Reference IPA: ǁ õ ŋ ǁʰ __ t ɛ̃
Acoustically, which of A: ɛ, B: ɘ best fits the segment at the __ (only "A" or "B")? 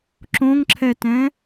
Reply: A